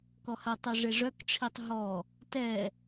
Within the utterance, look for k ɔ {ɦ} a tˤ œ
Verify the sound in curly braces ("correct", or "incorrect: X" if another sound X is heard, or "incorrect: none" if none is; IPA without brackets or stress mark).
incorrect: h